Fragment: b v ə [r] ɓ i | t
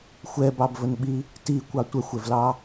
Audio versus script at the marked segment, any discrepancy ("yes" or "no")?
yes